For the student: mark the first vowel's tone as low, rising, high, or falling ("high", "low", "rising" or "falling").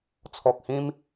low